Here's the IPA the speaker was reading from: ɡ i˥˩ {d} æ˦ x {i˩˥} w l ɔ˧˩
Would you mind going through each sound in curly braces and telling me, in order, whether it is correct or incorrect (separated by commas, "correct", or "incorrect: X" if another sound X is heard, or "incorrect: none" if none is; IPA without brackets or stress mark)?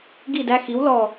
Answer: correct, correct